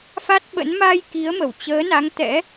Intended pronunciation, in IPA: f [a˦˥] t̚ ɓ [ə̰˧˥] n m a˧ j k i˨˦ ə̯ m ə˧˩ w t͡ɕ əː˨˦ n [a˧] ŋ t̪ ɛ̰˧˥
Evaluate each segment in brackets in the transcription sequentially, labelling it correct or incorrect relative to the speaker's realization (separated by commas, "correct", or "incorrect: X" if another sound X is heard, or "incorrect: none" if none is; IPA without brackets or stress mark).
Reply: correct, correct, incorrect: a˨˦